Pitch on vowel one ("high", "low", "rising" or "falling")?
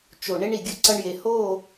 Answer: low